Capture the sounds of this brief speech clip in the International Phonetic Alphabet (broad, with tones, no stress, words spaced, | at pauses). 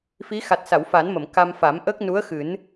fi˧˥ xa˨˩t̚sa˨˩˨wfa˨˩˦nmə˨˩˨m ka˧m fa˨˩˦m ʔə˦˥k̚ nu˧˥ə̯xɨ˨˩˦n